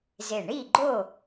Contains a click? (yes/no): yes